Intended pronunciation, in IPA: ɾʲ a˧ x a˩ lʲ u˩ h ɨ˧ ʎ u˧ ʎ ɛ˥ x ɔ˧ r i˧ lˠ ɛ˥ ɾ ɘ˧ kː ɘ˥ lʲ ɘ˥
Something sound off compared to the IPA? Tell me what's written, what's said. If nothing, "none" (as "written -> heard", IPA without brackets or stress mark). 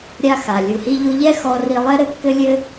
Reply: ɨ˧ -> i˧